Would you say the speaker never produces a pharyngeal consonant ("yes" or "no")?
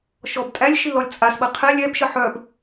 no